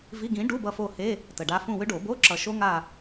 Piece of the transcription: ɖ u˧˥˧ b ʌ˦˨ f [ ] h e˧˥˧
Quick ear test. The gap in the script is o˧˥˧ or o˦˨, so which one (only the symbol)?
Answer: o˦˨